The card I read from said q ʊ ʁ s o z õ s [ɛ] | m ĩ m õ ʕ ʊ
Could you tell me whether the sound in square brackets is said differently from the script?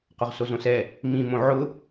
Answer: no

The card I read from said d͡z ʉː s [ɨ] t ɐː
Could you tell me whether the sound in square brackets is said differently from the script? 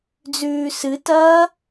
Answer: no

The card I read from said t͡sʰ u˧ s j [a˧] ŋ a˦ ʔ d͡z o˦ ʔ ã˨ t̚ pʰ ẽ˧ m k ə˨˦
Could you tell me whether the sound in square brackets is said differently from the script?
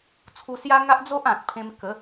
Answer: yes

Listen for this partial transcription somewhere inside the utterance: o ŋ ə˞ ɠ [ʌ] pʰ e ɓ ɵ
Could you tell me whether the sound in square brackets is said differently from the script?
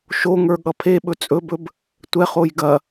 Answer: no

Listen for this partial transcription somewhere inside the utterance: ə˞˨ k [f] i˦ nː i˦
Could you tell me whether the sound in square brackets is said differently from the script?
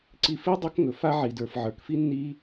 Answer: no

